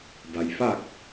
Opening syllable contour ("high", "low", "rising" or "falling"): low